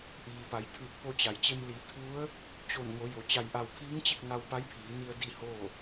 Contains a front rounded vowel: no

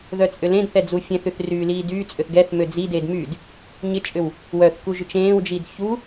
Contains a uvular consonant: no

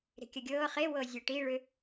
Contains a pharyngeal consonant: no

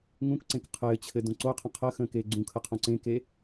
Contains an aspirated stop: yes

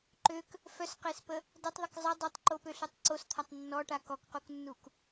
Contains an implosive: no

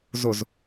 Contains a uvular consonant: no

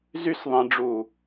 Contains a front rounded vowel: yes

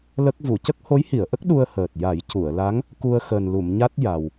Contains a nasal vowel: no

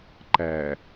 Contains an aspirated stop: no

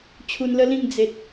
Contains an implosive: no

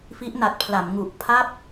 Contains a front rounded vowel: no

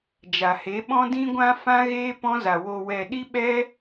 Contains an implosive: yes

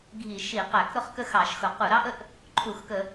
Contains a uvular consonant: yes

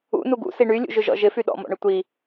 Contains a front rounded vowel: yes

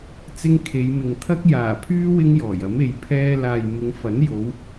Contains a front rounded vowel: yes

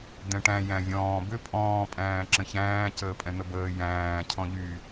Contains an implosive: no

